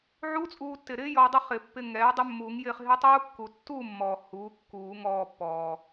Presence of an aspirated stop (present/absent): absent